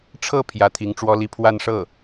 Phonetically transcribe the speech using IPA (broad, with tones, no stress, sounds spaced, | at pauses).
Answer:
ʈ͡ʂʰ ɤ˥˩ pʰ j ä˧˥ t̪ʰ i˧˥ ŋ ʈ͡ʂ w ɔ˥ l i˥˧ pʰ w a˥˧ n ʂ ɤ˥˩